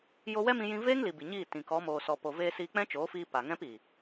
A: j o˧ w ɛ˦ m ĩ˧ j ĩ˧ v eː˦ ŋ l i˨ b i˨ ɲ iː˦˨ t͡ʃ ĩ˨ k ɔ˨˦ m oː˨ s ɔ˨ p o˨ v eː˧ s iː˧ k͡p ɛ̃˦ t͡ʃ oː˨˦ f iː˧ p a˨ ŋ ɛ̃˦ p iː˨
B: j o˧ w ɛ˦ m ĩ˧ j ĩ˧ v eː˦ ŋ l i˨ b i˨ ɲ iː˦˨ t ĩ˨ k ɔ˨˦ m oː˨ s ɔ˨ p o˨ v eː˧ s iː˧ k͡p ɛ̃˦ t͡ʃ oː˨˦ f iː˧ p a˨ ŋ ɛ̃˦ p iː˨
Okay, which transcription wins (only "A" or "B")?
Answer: B